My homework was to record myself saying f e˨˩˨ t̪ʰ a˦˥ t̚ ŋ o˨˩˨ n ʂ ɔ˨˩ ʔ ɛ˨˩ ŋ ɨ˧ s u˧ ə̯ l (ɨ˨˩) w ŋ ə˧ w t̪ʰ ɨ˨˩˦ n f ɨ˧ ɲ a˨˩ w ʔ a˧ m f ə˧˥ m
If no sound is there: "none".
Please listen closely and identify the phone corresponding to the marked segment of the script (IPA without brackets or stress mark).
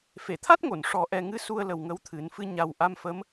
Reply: ə˨˩